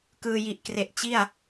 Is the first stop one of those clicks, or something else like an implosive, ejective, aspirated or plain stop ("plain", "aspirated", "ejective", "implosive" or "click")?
plain